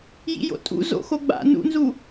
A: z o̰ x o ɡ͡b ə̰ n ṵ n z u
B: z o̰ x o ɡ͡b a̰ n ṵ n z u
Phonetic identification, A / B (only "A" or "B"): B